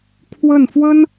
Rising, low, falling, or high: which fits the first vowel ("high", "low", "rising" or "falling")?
falling